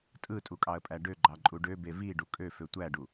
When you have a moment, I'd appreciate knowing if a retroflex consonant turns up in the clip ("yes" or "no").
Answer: yes